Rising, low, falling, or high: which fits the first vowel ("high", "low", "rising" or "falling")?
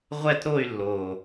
falling